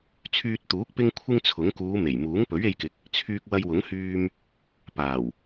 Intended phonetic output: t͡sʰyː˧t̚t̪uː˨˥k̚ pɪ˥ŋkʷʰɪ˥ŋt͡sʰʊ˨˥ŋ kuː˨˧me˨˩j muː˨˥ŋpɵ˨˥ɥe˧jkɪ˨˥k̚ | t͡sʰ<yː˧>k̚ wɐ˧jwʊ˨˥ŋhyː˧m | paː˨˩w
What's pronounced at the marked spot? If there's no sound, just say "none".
yː˧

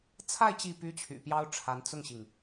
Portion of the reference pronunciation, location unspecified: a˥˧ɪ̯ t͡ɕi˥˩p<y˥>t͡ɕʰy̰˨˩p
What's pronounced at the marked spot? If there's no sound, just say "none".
y˥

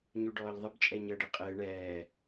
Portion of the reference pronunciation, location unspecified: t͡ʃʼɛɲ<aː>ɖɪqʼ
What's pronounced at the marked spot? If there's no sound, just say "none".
əː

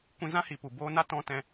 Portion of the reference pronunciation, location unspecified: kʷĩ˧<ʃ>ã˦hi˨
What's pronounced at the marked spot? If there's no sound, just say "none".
z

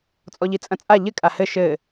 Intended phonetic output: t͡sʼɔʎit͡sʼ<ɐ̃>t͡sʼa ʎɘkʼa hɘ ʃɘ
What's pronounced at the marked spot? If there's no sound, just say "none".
ɐ̃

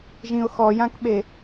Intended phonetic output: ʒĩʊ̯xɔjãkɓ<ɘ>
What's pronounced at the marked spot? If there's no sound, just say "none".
e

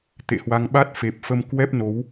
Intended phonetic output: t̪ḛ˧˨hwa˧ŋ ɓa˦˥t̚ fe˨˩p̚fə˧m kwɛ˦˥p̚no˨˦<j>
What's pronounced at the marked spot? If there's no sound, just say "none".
w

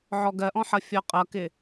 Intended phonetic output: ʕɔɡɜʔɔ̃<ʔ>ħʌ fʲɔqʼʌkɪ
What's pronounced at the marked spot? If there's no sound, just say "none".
none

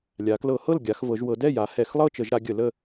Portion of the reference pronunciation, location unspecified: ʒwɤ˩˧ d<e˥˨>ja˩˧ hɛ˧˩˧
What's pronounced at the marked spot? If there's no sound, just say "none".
ɛ˥˨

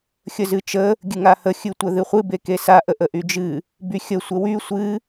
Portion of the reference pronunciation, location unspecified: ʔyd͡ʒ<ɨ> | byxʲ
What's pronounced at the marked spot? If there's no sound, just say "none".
ɨ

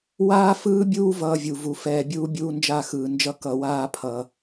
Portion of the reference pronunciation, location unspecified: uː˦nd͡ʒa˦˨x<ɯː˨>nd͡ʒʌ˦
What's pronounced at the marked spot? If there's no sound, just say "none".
ɯː˨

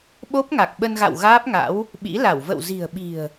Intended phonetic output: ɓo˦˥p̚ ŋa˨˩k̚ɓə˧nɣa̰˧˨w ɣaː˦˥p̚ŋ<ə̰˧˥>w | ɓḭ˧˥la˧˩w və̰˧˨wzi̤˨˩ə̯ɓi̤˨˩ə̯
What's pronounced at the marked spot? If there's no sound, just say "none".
a̰˧˥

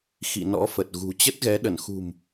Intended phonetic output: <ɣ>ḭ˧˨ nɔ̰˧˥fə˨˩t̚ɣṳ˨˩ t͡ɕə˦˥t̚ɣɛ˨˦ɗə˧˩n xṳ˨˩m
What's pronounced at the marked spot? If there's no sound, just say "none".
x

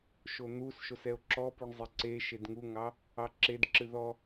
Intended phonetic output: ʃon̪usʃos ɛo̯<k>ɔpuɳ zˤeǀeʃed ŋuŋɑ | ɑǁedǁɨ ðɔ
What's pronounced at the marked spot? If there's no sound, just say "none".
ǁ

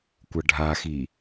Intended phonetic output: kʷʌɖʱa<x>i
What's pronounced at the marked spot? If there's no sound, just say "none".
x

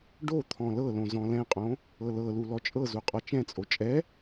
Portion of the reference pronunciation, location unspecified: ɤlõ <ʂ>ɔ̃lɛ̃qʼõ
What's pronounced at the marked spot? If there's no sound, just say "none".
z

